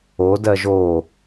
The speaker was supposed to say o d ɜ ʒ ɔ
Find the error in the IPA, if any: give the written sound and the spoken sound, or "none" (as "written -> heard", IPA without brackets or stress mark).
ɔ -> o